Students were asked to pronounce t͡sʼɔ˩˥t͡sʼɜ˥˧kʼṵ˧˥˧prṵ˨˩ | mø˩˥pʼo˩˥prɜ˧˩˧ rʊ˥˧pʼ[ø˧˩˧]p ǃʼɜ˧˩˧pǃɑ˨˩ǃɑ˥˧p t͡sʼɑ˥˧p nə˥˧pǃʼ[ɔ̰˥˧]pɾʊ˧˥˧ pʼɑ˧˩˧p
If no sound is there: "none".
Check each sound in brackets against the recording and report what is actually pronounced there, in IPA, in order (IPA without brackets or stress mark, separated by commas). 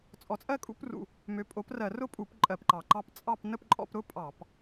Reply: u˧˩˧, ɔ̰˥˧